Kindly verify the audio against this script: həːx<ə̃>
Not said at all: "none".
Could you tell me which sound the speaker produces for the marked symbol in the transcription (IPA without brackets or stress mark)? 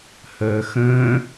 ə̃ː